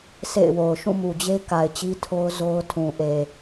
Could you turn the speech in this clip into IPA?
sʰ ḛ˦˨ ɪ̯ w o˨ ʊ̯ ʃ ũ˦˨ m u˨ d͡ʑ e˦ k a˨ ɪ̯ t͡ɕ i˦ tʰ o˦ ʊ̯ z o˦ ʊ̯ tʰ ũ˨ ʔ e˨

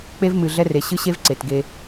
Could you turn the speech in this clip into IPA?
k͡p e˦ v m ɨ˨ ɮ ɛ˦ r e˨ ɕ ɨ˦ ɕ e˦ v ǀ e˨ t ɡ e˦

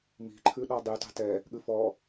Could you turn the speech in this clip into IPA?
m i̤ ǃʰ ʉ ɗ ɔ dˤ y t ɑ̤ t ɛ | ɠ ʉ f ɔ

